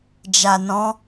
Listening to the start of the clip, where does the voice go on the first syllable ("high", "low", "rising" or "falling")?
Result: low